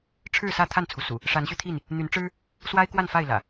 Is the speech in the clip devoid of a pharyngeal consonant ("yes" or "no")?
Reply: yes